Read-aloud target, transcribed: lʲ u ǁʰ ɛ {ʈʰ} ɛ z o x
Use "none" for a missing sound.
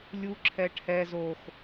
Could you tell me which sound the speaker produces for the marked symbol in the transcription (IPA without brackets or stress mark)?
ʈʰ